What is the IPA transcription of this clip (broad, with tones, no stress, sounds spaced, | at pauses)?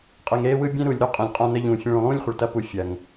qʼ e˨ ŋ ɾ eː˧ w ɯ˧ bʲ ẽ˦ ɾ u˨ lʲ ɾ u˦ qʼ ẽ˨ lʲ qʼ ã˧ n ə˧ ʎ ũː˨ fʲ ẽ˧ ɭ ũ˨ lˠ ũː˦ lʲ χʷ ə˨ ɭ t ɐ˧ p u˨ fʲ ɐ˨ ŋ